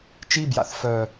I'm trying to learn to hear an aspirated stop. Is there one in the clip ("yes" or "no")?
no